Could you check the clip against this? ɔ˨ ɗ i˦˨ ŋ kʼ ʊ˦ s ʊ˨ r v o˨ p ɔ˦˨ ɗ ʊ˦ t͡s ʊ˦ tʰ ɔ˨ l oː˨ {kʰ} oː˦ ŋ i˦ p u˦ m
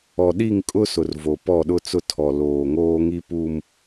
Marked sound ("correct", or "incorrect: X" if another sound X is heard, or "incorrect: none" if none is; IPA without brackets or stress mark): incorrect: ŋ